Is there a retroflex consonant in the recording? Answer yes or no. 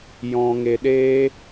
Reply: no